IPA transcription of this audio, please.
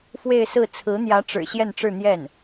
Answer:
f w e˥˧ ɪ̯ s ɹ̩˥˩ t͡sʰ ɹ̩˧˥ n̪ j ä˧˥ ʈ͡ʂ ɻ̩˨˩ ɕ j ɛ˥˧ n ʈ͡ʂ ɻ̩˥˧ n̪ j ɛ˥˩ n

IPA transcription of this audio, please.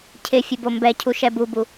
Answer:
cʰ ɪ fʲ ʊ b o m b ɛ cʰ u ʃ ɛ b u b u

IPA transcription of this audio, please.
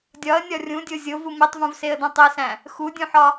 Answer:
dʲ ɒ ə̯ nʲ ɒ rʲ ũ dʲ o zʲ o v u m i tˤ v ũ v s e ə̯ d õ tˤ i s æ̃ | x u dʲ ũ ħ ɒ

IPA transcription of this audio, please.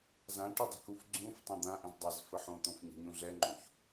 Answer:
z ã ʈ u dˤ ə̤ k u f ɡ͡ǀ ũ f tˤ ã d̪ ã ʔ ɛ̃ z dˤ a z f ə ħ õ t̪ õ f ɲ ə̤ ɲ ũ ɮ ɛ ŋ͡ǃ õ ç

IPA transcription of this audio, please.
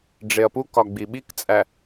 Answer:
ɖ͡ʐ e ɐ̯ p u k ɒ ɡ͡b i ɓ i k t͡sʼ æ

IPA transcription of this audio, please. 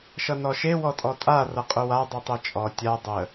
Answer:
ʃ ʌ n ɔ ʃ e w ɔ tʼ ɔ tʼ a r ʌ qʼ u w a dˤ u tˤ e t͡ʃʼ ɔ tʲ a dˤ ə

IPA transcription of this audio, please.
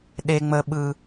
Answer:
ɗ e˦ ŋ͡m ə˦ ɓ ɯ˦

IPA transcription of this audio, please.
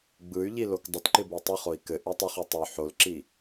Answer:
ɡ͡b ɯ y̯ ʎ i l o k dˤ ə t ǃ ɪ b ə i̯ tˤ ɯ χ o i̯ k ɘ ʔ y tˤ ɪ χ y tˤ o ħ o l ǁ i

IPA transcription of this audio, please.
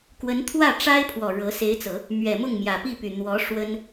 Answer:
k w ə˧˥ n t̪ʰ w ä˥˩ ʈ͡ʂ a˥ ɪ̯ pʰ w ɔ˨˩ ɻ ɤ˧˥ s e˧˥ ɪ̯ t͡s ɤ˨˩˦ | m ɥ ɛ˨˩ m ʊ˥˩ ŋ m j ä˨˩ p i˥˩ p y˨˩ n̪ w ɔ˧˥ ʂ w ə˥ n

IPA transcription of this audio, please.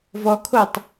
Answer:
v ɔ kʰ o tˤ

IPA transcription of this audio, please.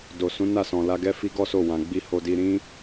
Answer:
d o˨ s ũ˨˦ n a˦˨ s ɔ̃˨ l a˧ ɡ ɛ˦ f i˦ ɡ ɔ˦ s o˦˨ w ã˨ ɡ͡b i˧ h o˧ d i˧ ɾ ĩ˦

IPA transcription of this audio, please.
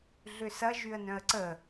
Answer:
ɮ ʏ s ɐ ʒ y ə̯ n œ̃ ə̯ ǀ ə

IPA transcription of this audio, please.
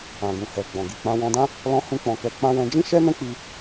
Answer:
ã˨ ɡ ũ˨ h ɛ˨ ɡ͡b ɔ̃˨ ɡ i˨ k͡p ã˧ w ɔ̃˧ d ã˦ | l ɔ̃˦ h ũ˦ k͡p ɔ̃˧ k ɛ˧ k͡p ã˦ w ɛ̃˧ d͡ʒ ĩ˦ ʃ ɛ˦ n ɛ̃˦ k͡p i˧

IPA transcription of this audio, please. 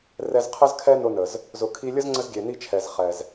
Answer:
r ɛ˧ z qʰ ə˦ z kʰ ɛ˦ n ʊ˧ n ə˨ z | z ʊ˨ kʰ i˧ lʲ ə˦ z ŋ͡ǀ ə˦ z ɡʲ e˨ n i˦ t͡ʃʰ ɛ˨ z χ ɛ˨ z

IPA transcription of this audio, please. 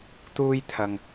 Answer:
t̪ uː˥ j t̪ʰ ɐ˨ ŋ

